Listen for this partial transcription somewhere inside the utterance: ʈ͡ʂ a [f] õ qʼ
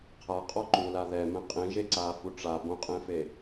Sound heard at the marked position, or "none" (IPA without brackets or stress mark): b